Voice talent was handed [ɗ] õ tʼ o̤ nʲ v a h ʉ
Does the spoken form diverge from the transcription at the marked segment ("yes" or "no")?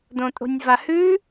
yes